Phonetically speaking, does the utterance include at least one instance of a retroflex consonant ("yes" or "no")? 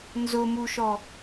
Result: no